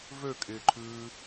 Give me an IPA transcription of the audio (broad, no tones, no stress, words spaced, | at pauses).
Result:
vøkʼɪːǃʰʉː